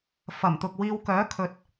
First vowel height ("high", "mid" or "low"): low